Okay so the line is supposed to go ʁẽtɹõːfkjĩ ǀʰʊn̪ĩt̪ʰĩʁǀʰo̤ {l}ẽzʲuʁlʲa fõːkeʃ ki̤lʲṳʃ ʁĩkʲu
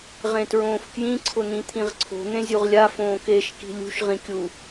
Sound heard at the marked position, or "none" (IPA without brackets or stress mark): n̪